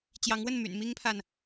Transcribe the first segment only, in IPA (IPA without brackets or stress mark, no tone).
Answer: t͡ɕ